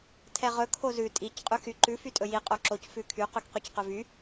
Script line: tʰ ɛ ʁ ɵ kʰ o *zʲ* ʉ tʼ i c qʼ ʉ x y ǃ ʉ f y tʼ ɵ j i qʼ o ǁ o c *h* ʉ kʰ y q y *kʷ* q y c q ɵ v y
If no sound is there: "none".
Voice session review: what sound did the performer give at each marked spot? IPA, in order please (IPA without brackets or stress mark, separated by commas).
z, f, k